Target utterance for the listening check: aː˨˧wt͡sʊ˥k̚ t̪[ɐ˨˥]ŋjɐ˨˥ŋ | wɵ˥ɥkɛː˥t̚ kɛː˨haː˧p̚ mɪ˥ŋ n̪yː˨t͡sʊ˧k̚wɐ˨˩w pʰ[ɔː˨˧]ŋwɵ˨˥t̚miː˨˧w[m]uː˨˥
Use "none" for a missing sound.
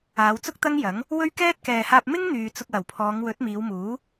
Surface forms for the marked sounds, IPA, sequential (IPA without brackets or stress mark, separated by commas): ɐ˥, ɔː˨˧, m